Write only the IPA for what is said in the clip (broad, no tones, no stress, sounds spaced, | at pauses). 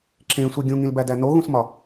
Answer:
ǁ ẽ sʷ i ɡʲ ũ ŋ ĩ l b æ d æ n o ɣ ũ s m ɒ